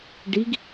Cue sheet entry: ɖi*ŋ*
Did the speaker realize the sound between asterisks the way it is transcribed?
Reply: no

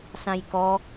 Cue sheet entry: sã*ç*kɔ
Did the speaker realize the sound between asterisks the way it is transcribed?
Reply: no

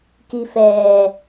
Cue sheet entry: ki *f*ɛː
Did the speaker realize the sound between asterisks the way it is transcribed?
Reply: yes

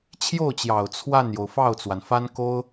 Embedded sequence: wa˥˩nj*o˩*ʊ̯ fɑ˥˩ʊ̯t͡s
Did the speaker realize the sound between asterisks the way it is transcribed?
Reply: yes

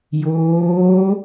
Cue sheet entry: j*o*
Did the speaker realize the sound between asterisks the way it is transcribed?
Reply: no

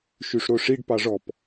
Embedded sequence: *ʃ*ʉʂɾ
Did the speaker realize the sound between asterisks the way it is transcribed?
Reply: yes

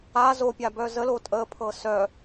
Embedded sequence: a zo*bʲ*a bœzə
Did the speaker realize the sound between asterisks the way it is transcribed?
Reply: no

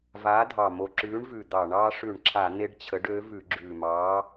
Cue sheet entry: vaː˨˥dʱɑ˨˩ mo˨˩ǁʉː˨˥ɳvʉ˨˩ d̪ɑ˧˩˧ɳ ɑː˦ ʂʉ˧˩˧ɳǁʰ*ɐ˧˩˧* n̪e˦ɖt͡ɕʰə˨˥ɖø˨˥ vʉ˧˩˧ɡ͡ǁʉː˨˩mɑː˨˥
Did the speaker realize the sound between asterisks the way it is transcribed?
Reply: no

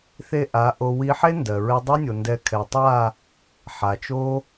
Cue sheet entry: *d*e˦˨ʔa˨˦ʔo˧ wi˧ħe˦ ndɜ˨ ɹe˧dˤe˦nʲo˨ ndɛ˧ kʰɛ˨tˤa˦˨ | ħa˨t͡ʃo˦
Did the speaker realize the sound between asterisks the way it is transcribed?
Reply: no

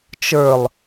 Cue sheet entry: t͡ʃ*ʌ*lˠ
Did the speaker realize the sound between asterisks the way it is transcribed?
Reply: no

